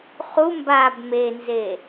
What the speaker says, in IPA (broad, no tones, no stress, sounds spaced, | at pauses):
χ u m b a b m e n z e